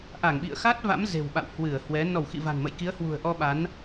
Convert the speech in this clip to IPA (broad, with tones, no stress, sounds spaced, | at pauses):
ʔ a˧˩ ŋ ɓ ḭ˧˨ ə̯ x a˦˥ t̚ v a̰˧˥ m z e̤˨˩ w ɓ a̰˧˨ w h w ɨ˧˩ ə̯ h w ɛ˨˦ n ɔ˧˩ w x ḭ˧˨ v a̤˨˩ n m ə̰˧˨ j k i˨˦ ə̯ h w ṳ˨˩ ə̯ ʔ ɔ˧ ɓ a˨˦ n